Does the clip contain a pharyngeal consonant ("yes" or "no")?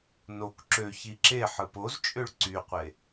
yes